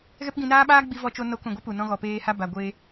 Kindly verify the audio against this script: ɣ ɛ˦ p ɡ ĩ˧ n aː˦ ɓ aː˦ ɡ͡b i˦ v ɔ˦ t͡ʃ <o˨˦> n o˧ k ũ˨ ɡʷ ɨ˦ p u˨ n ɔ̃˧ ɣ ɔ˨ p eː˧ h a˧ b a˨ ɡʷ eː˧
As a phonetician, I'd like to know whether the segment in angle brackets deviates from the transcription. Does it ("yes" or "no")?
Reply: yes